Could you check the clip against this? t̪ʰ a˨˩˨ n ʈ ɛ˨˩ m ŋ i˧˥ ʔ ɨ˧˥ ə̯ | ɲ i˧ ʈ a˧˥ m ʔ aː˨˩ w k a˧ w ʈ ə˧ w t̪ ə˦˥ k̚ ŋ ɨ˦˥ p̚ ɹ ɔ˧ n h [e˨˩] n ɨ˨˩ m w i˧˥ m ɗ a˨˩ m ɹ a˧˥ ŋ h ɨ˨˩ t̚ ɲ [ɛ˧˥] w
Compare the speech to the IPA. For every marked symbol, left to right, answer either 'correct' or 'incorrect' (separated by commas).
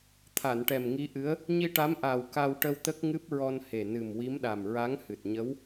correct, incorrect